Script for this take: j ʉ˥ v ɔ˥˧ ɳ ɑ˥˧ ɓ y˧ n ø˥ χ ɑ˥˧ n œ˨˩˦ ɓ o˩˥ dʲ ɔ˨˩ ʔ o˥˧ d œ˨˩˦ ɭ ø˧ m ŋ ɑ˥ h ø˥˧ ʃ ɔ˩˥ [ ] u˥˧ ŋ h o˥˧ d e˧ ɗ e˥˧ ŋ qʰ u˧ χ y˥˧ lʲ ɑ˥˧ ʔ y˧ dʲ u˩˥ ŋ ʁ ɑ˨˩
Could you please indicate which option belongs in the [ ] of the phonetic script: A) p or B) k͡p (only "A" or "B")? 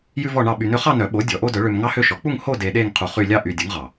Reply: B